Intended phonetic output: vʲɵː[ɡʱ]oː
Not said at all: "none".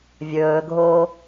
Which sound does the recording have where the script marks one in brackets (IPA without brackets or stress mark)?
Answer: ɡʱ